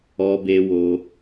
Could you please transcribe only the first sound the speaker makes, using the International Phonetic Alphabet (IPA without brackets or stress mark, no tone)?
ɔ